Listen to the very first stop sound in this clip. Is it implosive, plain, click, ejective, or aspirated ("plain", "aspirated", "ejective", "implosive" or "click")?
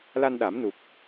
implosive